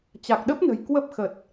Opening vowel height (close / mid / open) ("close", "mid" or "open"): open